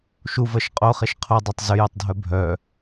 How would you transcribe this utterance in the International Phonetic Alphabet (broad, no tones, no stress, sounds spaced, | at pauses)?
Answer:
ʃ u v ɜ ʃ qʼ o χ e ʃ qʰ o dˤ œ tˤ z ʏ j ø tˤ dʱ œ bʱ œ